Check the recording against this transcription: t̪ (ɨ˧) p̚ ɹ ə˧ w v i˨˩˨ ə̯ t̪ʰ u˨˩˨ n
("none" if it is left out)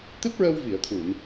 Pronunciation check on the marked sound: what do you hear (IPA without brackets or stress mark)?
ɨ˦˥